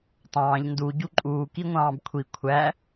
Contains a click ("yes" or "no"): yes